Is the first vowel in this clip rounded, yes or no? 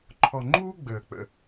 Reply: yes